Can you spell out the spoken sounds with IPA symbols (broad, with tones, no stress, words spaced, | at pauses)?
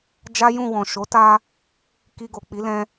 d͡ʒa˦jũ˦˨wɔ̃˨ ʃo˨˦ta˧ | ki˧ɡo˨k͡pi˨˦ lɛ̃˧